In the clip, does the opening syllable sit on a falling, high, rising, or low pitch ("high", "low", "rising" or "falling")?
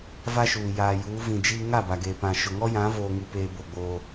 high